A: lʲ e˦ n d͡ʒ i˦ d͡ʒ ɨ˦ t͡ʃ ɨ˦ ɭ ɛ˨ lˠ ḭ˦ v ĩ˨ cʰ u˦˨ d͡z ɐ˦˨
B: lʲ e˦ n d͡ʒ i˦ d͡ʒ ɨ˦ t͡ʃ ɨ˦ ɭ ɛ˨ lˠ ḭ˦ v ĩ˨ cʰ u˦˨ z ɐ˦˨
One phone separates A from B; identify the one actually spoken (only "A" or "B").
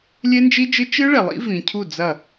A